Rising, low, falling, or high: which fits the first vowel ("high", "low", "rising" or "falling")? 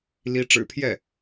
rising